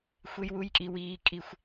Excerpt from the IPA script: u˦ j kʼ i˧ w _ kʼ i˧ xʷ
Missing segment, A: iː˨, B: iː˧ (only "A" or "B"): B